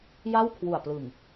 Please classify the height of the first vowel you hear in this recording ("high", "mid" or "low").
low